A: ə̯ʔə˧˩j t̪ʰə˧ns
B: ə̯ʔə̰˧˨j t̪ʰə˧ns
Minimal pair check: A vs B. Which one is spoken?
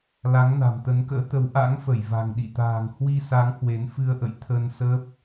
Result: B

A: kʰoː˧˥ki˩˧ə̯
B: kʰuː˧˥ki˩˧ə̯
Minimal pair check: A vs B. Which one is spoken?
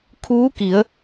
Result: B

